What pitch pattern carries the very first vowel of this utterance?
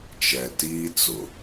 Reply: low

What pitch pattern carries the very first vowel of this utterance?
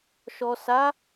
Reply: low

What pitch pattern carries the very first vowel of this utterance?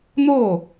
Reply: falling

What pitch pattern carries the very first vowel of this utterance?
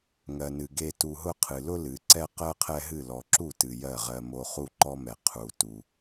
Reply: low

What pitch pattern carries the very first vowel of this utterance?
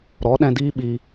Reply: rising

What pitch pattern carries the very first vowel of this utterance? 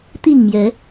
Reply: falling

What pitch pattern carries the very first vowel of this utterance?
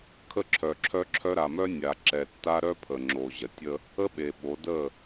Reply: falling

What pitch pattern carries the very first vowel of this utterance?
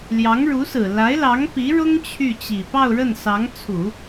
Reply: rising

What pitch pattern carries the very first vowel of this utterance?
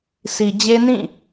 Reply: low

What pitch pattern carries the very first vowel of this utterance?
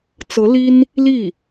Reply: rising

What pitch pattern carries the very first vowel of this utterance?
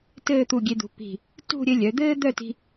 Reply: falling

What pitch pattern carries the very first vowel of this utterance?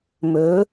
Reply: rising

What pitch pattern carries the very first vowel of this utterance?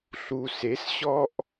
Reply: low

